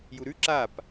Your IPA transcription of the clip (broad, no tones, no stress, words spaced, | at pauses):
juɾʉ ǁap